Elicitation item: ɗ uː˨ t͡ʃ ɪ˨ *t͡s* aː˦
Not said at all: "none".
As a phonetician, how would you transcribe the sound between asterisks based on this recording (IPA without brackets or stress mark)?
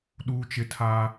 tʰ